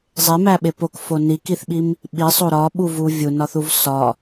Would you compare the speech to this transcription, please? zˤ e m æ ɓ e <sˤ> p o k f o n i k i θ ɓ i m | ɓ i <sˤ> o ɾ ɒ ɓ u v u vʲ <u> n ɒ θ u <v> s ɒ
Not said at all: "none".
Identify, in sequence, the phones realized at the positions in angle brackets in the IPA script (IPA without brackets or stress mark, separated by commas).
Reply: none, sˤ, u, v